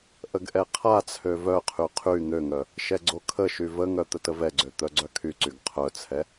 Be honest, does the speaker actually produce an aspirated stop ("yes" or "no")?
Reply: yes